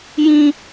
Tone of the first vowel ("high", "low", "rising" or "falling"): high